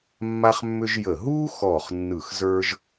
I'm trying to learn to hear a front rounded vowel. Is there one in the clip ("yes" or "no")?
yes